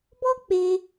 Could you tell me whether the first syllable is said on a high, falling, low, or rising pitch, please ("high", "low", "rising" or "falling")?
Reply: high